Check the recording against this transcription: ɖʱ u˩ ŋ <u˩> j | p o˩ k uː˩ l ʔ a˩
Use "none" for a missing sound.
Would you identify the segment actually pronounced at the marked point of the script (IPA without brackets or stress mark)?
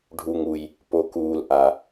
u˩